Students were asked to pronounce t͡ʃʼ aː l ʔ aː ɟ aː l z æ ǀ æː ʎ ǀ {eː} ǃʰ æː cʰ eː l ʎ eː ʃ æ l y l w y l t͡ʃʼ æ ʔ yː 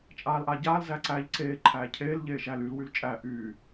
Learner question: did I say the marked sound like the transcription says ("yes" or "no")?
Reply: yes